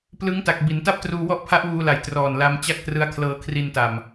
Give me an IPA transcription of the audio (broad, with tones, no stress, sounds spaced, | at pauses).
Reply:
p l ɯ˦˥ ŋ t a˨˩ k̚ b i˩˦ n t a˥˩ p̚ t r uː˧ w ɔ˥˩ ʔ pʰ a˦˥ ʔ w uː˧ l a˨˩ j t r ɔː˨˩ n l a˧ m t͡ɕ a˥˩ k̚ t r ɯ˦˥ a̯ kʰ l ɤː˧ kʰ r i˧ n t a˨˩ m